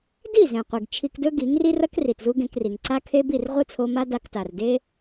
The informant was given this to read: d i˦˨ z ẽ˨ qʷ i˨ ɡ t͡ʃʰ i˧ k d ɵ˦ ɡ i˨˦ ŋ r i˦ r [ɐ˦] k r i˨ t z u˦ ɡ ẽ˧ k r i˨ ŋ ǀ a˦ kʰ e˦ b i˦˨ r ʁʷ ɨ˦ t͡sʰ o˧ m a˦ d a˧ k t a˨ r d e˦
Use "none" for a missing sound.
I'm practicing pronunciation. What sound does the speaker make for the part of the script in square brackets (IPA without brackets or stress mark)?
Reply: ɐ˦